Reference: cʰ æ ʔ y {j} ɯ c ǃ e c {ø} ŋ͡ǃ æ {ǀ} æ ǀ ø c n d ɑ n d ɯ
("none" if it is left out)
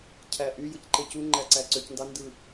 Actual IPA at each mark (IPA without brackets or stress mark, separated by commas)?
j, u, ǀ